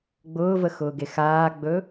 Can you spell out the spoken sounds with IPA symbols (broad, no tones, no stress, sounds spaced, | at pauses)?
ɡ͡b ʊː v ə x ʊː ɡ e x aː ɡ͡b ɵ